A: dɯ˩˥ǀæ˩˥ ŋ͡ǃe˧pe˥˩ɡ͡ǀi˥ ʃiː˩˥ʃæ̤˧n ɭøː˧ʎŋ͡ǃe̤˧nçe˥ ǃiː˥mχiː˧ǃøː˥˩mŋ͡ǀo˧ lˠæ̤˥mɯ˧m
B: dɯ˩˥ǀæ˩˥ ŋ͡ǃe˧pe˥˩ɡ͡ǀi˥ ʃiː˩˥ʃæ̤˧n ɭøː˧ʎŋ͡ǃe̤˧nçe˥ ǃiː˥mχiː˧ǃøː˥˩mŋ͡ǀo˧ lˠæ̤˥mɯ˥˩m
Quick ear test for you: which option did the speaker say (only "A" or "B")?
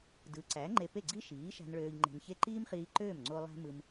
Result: A